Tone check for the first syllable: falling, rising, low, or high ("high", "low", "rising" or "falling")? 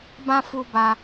high